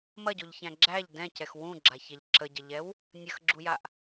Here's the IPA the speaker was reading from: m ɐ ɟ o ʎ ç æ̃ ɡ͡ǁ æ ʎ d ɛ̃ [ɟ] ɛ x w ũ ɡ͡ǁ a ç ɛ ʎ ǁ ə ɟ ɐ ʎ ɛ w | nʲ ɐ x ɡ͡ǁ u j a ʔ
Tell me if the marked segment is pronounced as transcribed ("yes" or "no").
no